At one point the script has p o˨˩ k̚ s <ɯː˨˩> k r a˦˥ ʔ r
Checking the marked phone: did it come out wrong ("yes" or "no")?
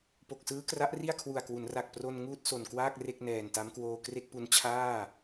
yes